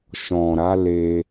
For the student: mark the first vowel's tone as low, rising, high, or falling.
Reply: low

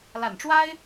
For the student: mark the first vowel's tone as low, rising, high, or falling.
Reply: low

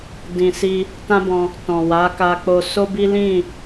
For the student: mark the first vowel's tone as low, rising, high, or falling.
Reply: low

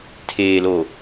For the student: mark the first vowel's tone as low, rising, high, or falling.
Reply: low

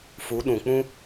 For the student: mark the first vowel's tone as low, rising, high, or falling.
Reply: rising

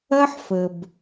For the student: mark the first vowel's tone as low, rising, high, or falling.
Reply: high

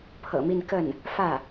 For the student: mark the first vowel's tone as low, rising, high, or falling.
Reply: low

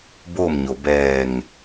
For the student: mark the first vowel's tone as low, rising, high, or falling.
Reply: falling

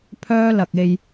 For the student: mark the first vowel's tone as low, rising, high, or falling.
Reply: high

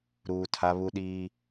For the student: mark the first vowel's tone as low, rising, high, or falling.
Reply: low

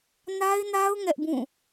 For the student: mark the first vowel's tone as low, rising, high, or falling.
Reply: high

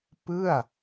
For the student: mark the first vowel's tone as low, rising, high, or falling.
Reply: falling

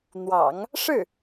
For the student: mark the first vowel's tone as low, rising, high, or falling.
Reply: low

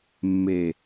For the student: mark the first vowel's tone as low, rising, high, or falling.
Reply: low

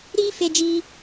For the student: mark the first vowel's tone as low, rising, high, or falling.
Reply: high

